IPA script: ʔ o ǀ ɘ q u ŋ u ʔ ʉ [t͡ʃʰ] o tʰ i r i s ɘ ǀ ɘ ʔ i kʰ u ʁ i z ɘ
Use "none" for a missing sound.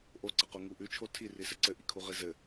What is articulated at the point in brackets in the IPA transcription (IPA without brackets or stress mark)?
t͡ʃʰ